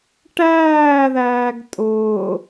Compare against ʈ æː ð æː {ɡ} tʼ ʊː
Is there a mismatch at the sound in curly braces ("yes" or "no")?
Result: no